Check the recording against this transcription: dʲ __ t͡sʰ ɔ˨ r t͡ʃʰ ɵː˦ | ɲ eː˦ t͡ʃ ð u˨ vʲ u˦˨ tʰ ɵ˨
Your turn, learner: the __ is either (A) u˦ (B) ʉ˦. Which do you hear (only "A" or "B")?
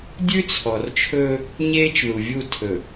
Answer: B